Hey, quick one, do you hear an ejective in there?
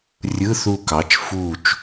no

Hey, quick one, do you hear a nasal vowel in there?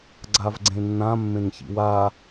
yes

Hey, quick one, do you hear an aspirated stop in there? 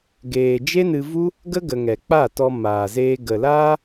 no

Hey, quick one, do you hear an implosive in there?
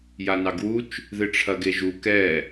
no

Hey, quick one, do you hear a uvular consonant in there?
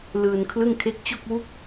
no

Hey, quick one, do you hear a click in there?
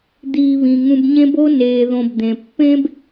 no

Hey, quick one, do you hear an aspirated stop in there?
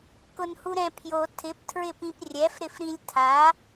yes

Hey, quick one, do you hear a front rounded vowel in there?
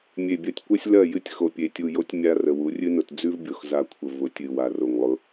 no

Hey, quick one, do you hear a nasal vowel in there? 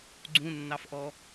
yes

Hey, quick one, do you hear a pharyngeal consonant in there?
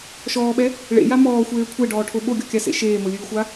no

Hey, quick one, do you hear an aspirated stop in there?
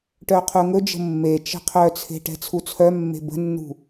yes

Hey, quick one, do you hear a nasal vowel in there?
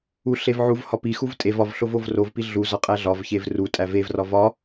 no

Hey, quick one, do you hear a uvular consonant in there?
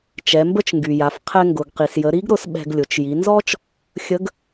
yes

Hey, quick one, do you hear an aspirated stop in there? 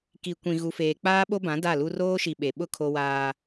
yes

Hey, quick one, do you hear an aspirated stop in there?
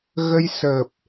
no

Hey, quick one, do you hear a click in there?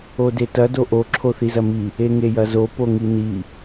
yes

